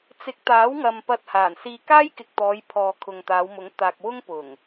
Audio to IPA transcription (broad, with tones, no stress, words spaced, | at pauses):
t͡sɪ˨˥k̚t̪aː˨˥wŋɐ˨m pɐ˧t̚haː˨˩nsiː˧ kaː˥jkɪ˨k̚t̪ɔː˨˧j pʰɔː˨ kʰʊ˨ŋt̪aː˨˧wmʊ˨˥ŋ t̪aː˨k̚wʊ˥ŋ pʊ˨˩ŋ